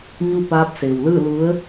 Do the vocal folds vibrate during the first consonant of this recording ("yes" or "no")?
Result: yes